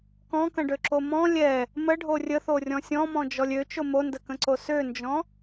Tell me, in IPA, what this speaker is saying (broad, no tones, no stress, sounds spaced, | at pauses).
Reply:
k ɔ̃ k ə̃ ɖ ø ǁ o m ɔ̃ lʲ ɛ | m ə ɖʱ o rʲ ə θ o rʲ ɔ̃ sʲ ɔ̃ m ɔ̃ d͡ʒ ɔ lʲ ø t͡ʃ o m o n d ə k ə̃ ǀ o s ø n d͡ʒ ɔ̃